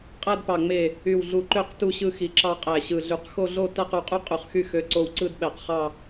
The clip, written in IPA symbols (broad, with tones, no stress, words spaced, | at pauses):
qʼæ˥˧dpɑ˧˩ŋ͡me˧˩ | y˧˩wɮu˧˩ǃø˥˧q tu˥˧ɕɯ˥˧xi˧˩ǁɑ˥˧ qʼæ˧˩ɕɯ˧˩ɮy˧˩q xo˥˧ɮo˥˧ tæ˥˧qu˧˩qʼy˥˧ qʼy˧˩χxy˥˧ xø˧˩ǀo˧˩w ǀɯ˥˧d ɓæ˧˩qχɑ˥˧